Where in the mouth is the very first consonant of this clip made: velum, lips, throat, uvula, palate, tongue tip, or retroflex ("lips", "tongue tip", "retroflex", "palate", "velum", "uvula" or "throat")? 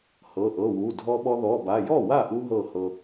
throat